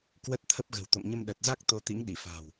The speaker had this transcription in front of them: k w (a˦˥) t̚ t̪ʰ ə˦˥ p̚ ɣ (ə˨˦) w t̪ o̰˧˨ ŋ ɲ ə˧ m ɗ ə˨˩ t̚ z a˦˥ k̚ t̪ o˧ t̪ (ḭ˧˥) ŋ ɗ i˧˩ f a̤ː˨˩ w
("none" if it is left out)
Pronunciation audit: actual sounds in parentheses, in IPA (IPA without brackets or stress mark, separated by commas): ə˦˥, ə̤˨˩, ḭ˧˥